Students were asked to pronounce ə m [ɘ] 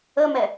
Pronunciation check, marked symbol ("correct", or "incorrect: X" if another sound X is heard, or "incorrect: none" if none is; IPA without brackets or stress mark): incorrect: ɛ